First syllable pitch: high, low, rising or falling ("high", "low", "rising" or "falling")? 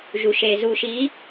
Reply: low